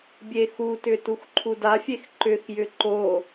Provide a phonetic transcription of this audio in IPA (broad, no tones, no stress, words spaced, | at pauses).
bʲexutʏ tuxǃʰudafʲex ǃʏxjʏ ǃo